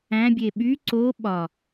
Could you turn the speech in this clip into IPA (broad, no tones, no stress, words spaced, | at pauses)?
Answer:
æ̃bʲe ɓy ǀo ɓɒ